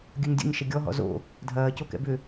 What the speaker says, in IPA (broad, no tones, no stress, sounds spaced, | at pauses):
ɡʲ œ ɲ dʲ o̰ ɲ ʃ ɛ ɡʲ ɔ ɦ ɔ̰ z o̰ | dʱ ɐː c o k ɛ̰ b ʏ